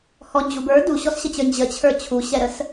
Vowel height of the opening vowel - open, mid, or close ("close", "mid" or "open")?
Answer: mid